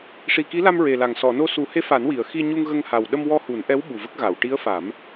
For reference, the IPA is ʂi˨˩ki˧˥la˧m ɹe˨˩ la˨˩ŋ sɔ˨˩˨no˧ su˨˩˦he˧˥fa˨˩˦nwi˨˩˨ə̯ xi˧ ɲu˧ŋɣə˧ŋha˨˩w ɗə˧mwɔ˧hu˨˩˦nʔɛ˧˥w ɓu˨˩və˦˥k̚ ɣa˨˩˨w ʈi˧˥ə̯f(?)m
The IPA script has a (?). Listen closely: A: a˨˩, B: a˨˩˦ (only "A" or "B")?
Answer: B